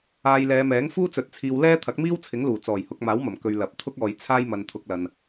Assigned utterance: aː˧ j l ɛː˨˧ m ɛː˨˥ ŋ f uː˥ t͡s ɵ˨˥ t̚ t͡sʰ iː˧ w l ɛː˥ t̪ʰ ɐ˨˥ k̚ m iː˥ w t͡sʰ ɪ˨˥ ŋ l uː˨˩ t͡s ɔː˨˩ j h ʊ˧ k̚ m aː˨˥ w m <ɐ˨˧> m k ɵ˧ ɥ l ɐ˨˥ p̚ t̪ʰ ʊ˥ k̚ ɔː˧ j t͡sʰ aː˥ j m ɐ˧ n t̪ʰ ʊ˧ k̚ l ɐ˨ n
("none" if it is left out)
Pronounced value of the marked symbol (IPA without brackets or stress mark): ɐ˨˩